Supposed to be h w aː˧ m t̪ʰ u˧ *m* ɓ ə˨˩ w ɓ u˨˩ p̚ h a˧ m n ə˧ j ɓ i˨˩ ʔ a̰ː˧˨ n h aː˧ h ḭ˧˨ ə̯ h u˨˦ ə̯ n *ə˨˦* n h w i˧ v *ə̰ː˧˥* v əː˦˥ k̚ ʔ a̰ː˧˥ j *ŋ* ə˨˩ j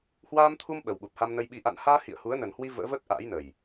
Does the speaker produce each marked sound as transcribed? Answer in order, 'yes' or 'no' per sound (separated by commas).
yes, no, yes, no